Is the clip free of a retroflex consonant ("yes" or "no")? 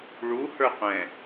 no